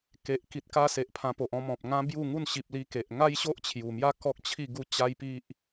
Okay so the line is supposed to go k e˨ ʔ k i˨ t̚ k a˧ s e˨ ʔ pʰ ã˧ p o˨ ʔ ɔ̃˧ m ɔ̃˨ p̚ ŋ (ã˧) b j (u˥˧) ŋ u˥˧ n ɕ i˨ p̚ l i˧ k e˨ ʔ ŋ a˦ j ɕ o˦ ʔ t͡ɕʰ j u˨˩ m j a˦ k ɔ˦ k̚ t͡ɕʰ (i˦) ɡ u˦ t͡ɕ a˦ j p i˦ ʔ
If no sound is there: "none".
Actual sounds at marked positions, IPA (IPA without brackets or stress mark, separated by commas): ã˦, u˥˧, i˥˧